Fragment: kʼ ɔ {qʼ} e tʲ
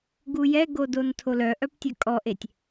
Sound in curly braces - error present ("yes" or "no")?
yes